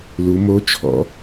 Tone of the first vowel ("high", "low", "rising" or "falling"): rising